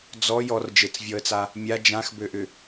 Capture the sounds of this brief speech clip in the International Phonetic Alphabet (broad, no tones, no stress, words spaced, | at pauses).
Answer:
d͡zɔ jɔrd͡ʒet͡svʲɔə̯t͡sa | mʲa d͡ʒãxbøʔʏ